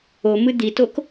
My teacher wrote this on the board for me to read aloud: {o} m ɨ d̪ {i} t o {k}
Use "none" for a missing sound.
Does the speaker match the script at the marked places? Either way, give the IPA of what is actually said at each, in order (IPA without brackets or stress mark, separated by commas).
o, i, k